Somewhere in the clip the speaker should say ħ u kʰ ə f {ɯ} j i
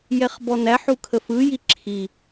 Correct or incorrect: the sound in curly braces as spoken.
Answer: correct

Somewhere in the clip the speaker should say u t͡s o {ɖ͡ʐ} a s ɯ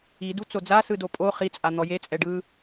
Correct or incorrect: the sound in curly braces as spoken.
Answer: incorrect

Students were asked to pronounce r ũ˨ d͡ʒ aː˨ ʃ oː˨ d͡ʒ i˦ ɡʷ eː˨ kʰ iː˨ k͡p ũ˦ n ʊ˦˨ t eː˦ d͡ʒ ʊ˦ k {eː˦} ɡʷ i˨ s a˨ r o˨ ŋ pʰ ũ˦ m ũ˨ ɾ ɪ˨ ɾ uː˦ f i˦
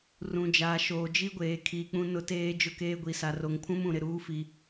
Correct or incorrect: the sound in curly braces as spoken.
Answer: correct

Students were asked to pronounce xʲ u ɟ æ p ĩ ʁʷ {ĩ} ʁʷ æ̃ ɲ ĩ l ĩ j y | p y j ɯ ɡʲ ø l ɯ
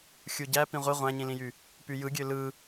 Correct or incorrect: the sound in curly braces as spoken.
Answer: incorrect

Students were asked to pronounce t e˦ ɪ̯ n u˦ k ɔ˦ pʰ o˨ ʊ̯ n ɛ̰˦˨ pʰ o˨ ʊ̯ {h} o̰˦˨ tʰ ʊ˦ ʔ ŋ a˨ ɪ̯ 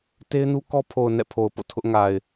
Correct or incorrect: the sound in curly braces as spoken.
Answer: incorrect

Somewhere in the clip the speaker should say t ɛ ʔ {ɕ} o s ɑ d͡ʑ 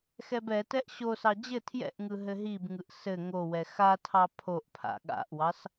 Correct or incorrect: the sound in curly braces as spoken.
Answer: correct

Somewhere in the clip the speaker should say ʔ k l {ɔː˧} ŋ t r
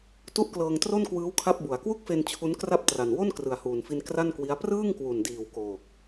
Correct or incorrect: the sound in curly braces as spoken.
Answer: incorrect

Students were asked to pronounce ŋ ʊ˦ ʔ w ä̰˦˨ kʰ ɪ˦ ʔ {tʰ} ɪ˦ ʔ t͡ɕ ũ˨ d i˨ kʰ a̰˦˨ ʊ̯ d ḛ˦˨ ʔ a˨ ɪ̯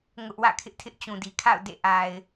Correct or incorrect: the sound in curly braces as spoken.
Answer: correct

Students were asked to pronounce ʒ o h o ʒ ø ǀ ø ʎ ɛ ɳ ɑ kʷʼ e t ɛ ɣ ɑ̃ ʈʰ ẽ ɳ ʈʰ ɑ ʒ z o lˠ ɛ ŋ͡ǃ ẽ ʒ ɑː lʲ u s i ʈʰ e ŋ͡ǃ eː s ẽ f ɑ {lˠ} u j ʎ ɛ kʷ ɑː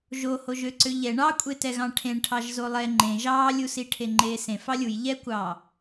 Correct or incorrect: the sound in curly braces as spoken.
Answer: incorrect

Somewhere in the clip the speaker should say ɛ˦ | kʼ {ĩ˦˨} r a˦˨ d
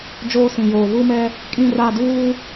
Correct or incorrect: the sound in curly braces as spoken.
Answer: correct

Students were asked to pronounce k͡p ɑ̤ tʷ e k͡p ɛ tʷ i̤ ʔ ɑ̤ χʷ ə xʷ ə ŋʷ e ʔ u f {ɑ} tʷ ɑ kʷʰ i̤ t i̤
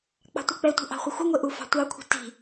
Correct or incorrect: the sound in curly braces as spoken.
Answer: incorrect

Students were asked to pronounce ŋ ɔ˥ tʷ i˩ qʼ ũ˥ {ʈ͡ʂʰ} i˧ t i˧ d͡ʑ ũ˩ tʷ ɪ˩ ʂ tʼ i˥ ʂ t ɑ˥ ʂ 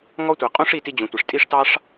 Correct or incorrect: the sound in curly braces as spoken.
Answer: incorrect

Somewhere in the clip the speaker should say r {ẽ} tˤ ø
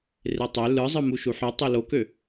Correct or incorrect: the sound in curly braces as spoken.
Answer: incorrect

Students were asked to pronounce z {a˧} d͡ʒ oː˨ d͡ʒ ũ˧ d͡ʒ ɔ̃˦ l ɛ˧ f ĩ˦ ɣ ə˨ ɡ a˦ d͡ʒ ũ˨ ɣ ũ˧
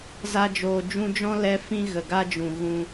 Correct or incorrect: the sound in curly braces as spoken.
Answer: correct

